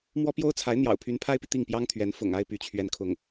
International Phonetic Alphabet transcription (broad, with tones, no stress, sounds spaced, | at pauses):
m w ɔ˥ p j o˥ ʊ̯ t͡sʰ a˧˥ ɪ̯ n̪ j ɑ̰˨˩ ʊ̯ pʰ y˧˥ n pʰ a˥ ɪ̯ p i˨ t̪ i˥˩ ŋ p j ɑ˥ ŋ t̪ʰ ɥ ɛ˧˥ n f ʊ̰˨˩ ŋ a˥˧ ɪ̯ p y˥˧ t͡ɕʰ ɥ ɛ˥˧ n kʰ ʊ˥˩ ŋ